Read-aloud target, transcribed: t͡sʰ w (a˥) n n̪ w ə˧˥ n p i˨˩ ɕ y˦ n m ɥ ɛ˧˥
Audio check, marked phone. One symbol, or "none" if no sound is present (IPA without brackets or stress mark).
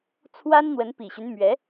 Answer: a˥